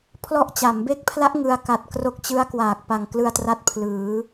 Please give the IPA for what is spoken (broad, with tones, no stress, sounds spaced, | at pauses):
pʰ l ɔ˥˩ ʔ t͡ɕ a˩˦ m b e˦˥ k̚ pʰ l a˦˥ ʔ ŋ ɯ˧ a̯ k a˨˩ t̚ k r o˦˥ k̚ t͡ɕ ɯ˦˥ a̯ k w aː˨˩ k̚ p a˨˩ ŋ k l ɯ˧ a̯ t r a˥˩ t̚ pʰ l ɯː˩˦